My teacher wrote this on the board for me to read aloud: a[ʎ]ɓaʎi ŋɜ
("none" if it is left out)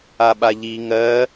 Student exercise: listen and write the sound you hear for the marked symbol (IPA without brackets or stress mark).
none